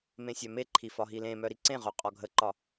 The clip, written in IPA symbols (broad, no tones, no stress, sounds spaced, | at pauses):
m ẽ sʲ œ m e ǃʰ i f ɒ ɦ i l ẽ m œ ɾ i ǀ ẽ ʁ œ qʼ ɒ ɡʱ ə ǃ ɒ